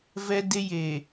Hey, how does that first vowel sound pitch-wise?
high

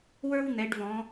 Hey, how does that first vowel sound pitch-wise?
high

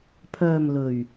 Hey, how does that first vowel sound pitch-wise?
low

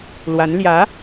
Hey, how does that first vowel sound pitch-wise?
rising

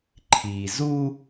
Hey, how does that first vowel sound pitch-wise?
low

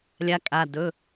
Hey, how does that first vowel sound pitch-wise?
rising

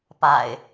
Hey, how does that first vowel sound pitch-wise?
low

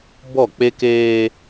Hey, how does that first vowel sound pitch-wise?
falling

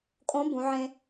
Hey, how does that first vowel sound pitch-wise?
rising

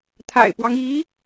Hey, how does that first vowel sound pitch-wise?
low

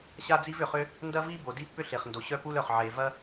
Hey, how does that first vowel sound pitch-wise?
high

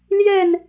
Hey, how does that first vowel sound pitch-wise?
falling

